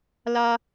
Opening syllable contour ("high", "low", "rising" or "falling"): high